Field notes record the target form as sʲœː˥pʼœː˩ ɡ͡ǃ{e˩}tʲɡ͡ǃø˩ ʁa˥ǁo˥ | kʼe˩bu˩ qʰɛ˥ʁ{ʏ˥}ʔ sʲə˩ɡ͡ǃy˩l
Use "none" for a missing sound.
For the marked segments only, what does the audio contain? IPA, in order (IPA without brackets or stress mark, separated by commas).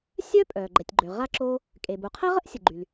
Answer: ɛ˩, ə˥